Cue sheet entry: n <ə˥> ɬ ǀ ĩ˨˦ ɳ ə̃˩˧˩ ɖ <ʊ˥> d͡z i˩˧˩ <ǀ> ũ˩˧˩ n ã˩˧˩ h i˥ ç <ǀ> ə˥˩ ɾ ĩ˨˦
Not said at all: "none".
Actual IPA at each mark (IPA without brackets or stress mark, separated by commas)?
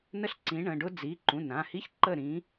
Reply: ə˥, ʊ˥, ǃ, ǃ